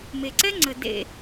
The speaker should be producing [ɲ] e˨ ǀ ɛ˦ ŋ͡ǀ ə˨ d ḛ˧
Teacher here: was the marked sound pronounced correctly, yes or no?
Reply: no